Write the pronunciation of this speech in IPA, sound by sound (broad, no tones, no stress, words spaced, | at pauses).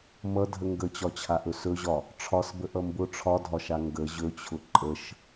mʌdʱə ŋɡət͡ɕɒt͡ɕʰaʔɵ sɵʑɒ | ʈ͡ʂʰɒsbəʔʌ mbʊ ʈ͡ʂʰɒdʱɒʃa ŋɡə ʑɵt͡ɕʰʊ ǃʼəʃ